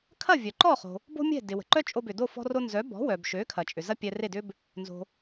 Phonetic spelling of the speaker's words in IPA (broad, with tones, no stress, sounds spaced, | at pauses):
kʰ ɐ˥˩ vʲ œ˩ ǃ ɔ˥˩ χ o̤˩ | b o̤˥ mʲ ɛ̤˥˩ d ɪ˩ w ə̤˩ ǃ œ˥ t͡ʃʼ o˧ b ʏ˩ d o˥˩ f ɔ̤˧ r o˧ n z œ˩˥ b ɔ̤˩˥ w œ˩ b ʃ ø˩˥ kʰ ɐ˩ t͡ʃʼ ʏ˩ z ɐ˥ pʲ ɛ˧ r e˥˩ d ʏ˥ b | n z o̤˩